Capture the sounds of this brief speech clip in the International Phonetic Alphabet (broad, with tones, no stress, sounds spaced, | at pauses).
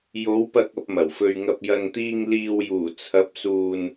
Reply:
j o˨˥ w p ɐ˧ k̚ ɐ˧ p̚ m ɐ˨˩ w f ɵ˧ ɥ ŋ ɐ˧ p̚ j ɐ˨ n t̪ iː˧ ŋ l iː˨ w j uː˨˩ t͡sʰ ɐ˨˥ p̚ s uː˨ n